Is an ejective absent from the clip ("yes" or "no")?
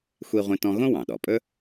no